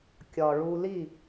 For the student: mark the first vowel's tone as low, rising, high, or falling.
low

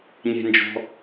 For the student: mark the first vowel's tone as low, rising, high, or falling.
high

